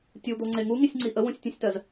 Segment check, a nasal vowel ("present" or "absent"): present